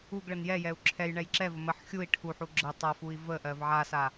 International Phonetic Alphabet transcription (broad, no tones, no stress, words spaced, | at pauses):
uɡɭən jɛjɛu̯ ǁʰɛjɳɛj ǁɛvə məħ xʲui̯ ʈʰuħu ɡ͡ǁə tˤafui̯ vəʔɜv ʕasa